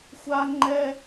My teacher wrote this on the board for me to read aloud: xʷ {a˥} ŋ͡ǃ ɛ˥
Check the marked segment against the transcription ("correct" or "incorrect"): correct